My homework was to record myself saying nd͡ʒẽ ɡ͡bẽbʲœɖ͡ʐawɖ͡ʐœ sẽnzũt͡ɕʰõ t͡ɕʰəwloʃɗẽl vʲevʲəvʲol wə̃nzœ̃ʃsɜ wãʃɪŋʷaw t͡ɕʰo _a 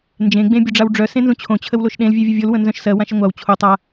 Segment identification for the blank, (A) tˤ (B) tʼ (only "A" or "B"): A